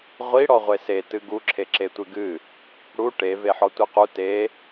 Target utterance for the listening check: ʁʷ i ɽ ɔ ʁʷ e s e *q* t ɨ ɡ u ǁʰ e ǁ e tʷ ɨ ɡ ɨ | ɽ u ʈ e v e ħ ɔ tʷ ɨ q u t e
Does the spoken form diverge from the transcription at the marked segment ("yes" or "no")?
yes